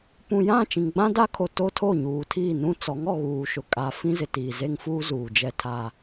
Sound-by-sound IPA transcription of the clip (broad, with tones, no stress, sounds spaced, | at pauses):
p ũ˨ j ã˦˨ t͡ʃ ĩ˨ ŋ ɡ͡b ã˦ d a˦ kʰ o˨ t o˦ tʰ o˦˨ ɲ uː˨ tʰ iː˦˨ n ũ˦ t͡s ɔ˨˦ ŋ ɔ˨ ɣ uː˨ ʃ ʊ˨ kʼ a˨ f ĩ˦ z ɪ˨ t iː˨ z e˦ ŋ f uː˦ z uː˨ d͡ʒ ɛ˦ tʰ a˦